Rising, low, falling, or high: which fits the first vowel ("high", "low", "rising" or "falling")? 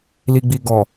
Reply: low